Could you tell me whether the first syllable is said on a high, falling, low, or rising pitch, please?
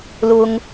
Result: high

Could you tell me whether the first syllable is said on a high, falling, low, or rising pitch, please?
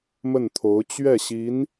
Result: falling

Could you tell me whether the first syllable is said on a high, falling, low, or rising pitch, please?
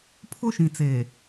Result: high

